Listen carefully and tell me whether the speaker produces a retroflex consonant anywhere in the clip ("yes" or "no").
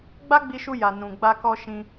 no